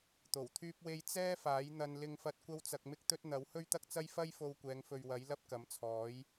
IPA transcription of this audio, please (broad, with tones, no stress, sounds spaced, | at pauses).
t̪ o˨˩ w t̪ʰ yː˥ p̚ w e˥ j t͡s ɛː˥ f aː˨˥ j n̪ ɐ˧ n l ɪ˥ ŋ f ɐ˥ t̚ kʷ ɐ˥ w t͡s ɐ˧ k̚ m ɪ˥ k̚ t̪ ɵ˥ t̚ n̪ ɐ˨˥ w h ɵ˥ ɥ t̪ ɐ˥ k̚ t͡s ɐ˥ j f ɐ˥ j f o˧ w kʷ ɛː˨˧ ŋ f ɵ˨ ɥ w ɐ˨˥ j l ɐ˥ p̚ k ɐ˨˥ m t͡sʰ ɔː˨˥ j